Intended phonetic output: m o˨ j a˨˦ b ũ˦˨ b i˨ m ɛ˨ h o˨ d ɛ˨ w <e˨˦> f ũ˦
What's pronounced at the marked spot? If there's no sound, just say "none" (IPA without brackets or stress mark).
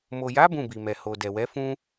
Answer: ɛ˨˦